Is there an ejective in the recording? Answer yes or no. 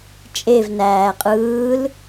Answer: yes